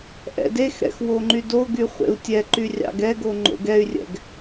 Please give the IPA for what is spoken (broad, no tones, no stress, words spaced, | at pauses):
ʔɛ̰dexɾɛ̰x woŋ͡ǃydoɡy χʷḛu̯tʲɛǃy rʲɑ̰ɡɛɡo ŋ͡ǃo̰ɡɛy̯rʲɛ̰ɡ